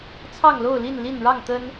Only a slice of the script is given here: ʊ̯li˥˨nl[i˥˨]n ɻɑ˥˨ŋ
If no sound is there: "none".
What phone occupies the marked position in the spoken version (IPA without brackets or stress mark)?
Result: i˥˨